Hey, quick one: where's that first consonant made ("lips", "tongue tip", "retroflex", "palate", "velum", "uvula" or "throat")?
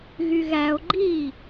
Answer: velum